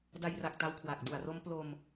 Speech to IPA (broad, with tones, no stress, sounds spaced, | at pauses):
d a˧ j r a˨˩ k̚ t a˦˥ w kʰ w a˨˩ k̚ d u˨˩ a̯ r o˦˥ m p l o˧ m